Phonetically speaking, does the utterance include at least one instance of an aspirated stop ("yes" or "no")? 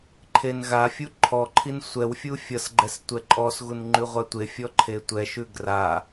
yes